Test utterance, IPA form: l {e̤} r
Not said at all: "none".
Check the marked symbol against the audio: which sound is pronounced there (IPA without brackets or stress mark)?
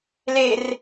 e